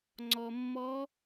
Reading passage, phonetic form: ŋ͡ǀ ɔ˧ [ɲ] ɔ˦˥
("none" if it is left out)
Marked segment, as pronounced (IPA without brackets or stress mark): mː